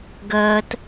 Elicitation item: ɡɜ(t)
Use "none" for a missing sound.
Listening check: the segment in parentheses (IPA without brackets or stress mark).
t